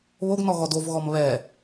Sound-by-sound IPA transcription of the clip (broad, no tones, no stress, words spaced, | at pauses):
βoɡnɔ ɣɔdovɣɔm βɛ